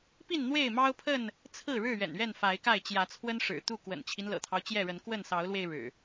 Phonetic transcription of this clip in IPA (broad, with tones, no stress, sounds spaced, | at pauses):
p i˥˨ n n̪ w e˥˨ ɪ̯ m ɑ˦ ʊ̯ pʰ ə˥˨ n | t͡sʰ ɹ̩˥˨ ɻ ɻ̩˥˨ ɥ ɛ̰˨˩ n ɥ ɛ˥˨ n f a˨˦ ɪ̯ k a˥˨ ɪ̯ t͡ɕ j ä˨˦ t͡sʰ w ə˦ n ʂ ɻ̩˨˩ t̪ u˥˨ k w ə̰˨˩ n t͡ɕʰ i˦ n l ɤ̰˨˩ t̪ʰ ɑ˦ ʊ̯ t͡ɕ j ɛ˥˨ ɻ ə˨˦ n k w ə˥˨ n s ɑ˨˦ ʊ̯ l w e˧ ɪ̯ ɻ ɻ̩˨˩